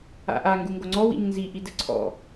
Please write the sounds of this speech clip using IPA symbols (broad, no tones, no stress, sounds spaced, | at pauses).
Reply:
a̰ ʔ a ŋ ɡ u ŋ ɡ o ŋ͡ǀ ɔ w ḭ ɲ n z i ʔ i d ɘ ǀʰ ɔ̰